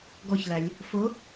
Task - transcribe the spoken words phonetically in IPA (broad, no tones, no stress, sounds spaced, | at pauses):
ɡ ɔ ç l æ lʲ | f ʊ